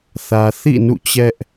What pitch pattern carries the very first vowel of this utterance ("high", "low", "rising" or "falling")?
low